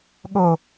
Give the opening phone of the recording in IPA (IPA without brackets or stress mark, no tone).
ɠ